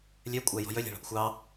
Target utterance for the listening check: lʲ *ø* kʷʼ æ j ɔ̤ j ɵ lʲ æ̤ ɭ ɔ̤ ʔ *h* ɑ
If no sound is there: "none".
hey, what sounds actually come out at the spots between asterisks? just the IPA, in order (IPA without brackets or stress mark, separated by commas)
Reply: ø, xʷ